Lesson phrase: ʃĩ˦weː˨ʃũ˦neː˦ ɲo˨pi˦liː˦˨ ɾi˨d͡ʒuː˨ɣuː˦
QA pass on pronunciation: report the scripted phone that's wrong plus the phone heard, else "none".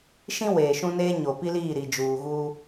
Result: none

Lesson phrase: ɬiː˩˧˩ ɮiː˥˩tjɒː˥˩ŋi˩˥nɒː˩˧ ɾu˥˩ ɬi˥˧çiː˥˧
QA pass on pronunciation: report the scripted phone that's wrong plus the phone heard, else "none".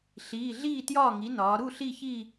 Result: none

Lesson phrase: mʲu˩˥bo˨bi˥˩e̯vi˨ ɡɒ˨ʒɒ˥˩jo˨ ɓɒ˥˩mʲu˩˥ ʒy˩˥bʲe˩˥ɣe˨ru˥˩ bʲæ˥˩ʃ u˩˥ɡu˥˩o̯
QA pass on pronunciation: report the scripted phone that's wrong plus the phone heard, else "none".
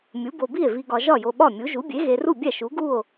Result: y˩˥ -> u˩˥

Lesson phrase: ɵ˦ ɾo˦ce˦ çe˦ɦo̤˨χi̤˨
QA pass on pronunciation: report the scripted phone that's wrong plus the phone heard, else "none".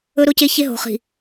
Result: none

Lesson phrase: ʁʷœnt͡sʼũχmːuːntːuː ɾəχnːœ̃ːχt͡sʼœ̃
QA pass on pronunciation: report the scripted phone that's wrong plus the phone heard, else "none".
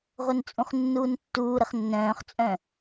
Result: mː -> nː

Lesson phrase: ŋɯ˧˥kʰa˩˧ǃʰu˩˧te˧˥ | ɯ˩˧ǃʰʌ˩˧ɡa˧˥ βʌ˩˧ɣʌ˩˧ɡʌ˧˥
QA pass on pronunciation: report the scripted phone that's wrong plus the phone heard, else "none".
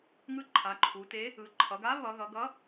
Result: kʰ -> ǃʰ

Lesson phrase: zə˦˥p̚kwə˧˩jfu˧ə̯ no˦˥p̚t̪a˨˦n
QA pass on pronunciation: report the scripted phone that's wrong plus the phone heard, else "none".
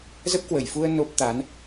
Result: none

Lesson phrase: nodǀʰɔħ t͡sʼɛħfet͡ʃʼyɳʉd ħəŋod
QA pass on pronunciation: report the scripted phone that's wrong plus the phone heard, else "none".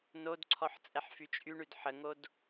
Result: e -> y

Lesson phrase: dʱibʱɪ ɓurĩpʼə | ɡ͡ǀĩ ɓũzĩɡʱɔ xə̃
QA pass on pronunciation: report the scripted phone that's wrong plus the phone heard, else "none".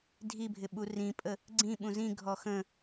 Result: none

